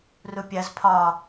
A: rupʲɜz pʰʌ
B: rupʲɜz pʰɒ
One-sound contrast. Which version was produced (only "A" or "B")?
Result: B